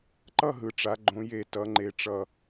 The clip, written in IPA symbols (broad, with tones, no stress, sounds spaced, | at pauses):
ǃ ʌ˥˨ ɦ ɯ˩˧ ʈ͡ʂ a˩˧ ɡ͡ǃ õ˩˧ j e˨˩ t ʌ˩˧ ŋ͡ǃ e˨˩ ʈ͡ʂ ʌ˨˩